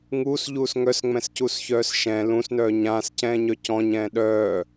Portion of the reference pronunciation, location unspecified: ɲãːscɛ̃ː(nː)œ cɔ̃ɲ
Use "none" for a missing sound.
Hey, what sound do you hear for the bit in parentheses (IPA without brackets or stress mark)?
ɲ